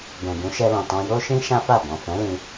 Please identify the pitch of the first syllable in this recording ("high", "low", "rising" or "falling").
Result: low